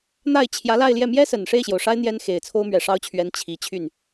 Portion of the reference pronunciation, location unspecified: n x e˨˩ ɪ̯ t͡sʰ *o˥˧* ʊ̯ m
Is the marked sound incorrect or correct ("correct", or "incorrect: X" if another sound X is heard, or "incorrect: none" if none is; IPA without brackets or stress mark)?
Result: incorrect: o˥